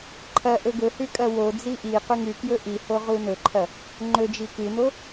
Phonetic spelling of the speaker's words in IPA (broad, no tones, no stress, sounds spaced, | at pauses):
ǃʰ ɐ ʔ ɵ ɡ ɵ h ʉ kʼ ɐ w o d͡z i ʔ i q ʉ ŋ ʉ k j ɵ ʔ i h o ʁ u n ɵ ǃʰ ɐ | ŋ͡ǃ ɵ d͡ʒ i k ɨ n o